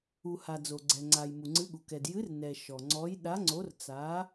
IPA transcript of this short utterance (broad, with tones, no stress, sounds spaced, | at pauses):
u˩ h a˩ d͡z o˩ ɡ͡ǀ ɛ˩ ŋ͡ǀ a˩ j m u˩ ŋ͡ǀ ɨ˨˥ ɠ u˩ k ɛ˩ d j ɨ˨˥ r n ɛ˩ ʃ ɔ˩ ŋ͡ǀ ɔ˨˥ j ɗ a˨˥ ŋ͡ǀ o˨˥ r t͡s a˨˥